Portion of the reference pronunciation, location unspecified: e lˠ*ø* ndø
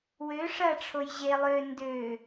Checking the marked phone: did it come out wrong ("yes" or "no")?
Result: no